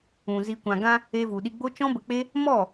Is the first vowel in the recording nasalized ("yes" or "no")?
yes